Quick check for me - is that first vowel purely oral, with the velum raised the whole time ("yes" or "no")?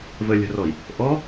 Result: yes